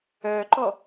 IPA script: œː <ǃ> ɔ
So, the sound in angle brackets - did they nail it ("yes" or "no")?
yes